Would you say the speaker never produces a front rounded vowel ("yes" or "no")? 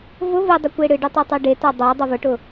yes